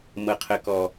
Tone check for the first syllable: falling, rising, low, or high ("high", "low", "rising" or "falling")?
low